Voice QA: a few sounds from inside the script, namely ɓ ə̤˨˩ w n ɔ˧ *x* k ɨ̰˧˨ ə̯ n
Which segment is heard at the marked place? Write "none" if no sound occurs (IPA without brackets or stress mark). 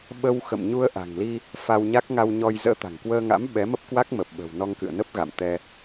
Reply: ŋ